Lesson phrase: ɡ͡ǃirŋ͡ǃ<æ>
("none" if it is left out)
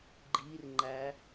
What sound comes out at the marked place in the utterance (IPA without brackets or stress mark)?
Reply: æ